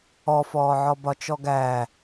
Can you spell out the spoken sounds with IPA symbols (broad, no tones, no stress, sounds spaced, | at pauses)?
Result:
ɔ f ɔː ʕ ɔ b ɒ t͡ʃ ɔ ɡ æː